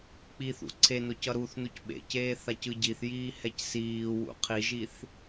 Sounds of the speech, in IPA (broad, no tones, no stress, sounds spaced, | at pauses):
k͡p i θ ṵ ǀʰ e n o c ʌ ɾ u θ n u c ɓ ḛ c eː θ a c ɯ ɟ i θ j iː h ɛ c s iː w ṵ qʰ i ʒ i θ